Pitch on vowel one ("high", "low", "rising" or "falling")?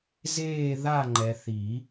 falling